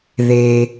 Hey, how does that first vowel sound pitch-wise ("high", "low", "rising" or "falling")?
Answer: low